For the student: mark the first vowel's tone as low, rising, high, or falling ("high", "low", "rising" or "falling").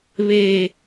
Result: low